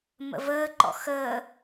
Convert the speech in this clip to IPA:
m ə̰ v əː ǃ ɔ̰ x əː

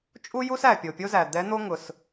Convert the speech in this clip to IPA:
t͡ʃʼ u˥ j u˥ s æ˩ pʲ o˩ pʲ o˥ z æ˩ d̪ ɛ˧˥ n̪ o˥ ŋ ʊ˩ s

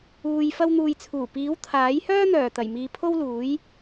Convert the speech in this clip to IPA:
uː˨ j f ɐ˥ w n̪ uː˧ j t͡sʰ uː˨˩ p iː˨˥ w t̪ʰ aː˨˥ j h œː˥ n̪ œː˨˩ t̪ ɐ˨˩ j m iː˨ pʰ o˥ w l uː˨˥ j

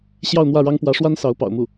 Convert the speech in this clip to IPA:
ɕ j ɑ˥˧ ʊ̯ n̪ w ä˥˩ ɻ ɑ˥ ŋ p w ä˧˥ ʂ w a˥ n s ɑ˧˥ ʊ̯ p ɑ̰˨˩ ʊ̯ m u˥˩

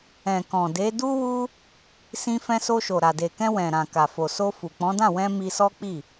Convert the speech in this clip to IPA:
ɛ̃˨ k ɔ̃˨ d e˨˦ d u˦ w u˦ | s ĩ˧ f ɛ̃˧ s o˧ ʃ o˨ ɾ a˨ d e˨ k ɛ̃˧ w ɛ̃˨ ɾ ã˨ k a˨ f o˨ s o˧ f u˨ k͡p ɔ̃˨˦ d ã˦˨ w ɛ̃˧ m i˧ s ɔ˦ k͡p i˦˨

